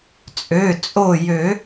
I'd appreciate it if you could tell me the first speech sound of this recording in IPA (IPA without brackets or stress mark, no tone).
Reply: t͡sʼ